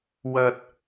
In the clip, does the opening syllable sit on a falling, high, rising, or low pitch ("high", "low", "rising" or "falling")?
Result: high